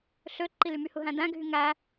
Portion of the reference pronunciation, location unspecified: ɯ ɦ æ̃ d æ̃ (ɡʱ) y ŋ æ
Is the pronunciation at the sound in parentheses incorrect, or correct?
correct